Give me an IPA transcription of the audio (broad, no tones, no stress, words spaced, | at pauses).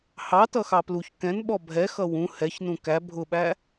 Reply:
hɑtʌxɑ pluç kɛ̃nɓɔ bʱɛxʌ wũ hɛçnũ kæ bʱʊɓæ